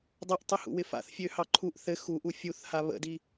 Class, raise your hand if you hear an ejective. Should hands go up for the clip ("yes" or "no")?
no